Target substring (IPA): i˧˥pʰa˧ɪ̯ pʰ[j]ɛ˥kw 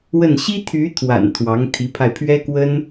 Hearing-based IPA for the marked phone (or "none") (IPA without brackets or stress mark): ɥ